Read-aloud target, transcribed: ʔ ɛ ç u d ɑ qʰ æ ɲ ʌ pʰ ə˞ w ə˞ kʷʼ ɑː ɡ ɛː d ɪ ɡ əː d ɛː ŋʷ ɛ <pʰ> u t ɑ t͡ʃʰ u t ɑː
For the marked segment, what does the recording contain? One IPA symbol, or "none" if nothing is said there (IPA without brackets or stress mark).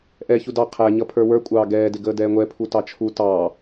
pʰ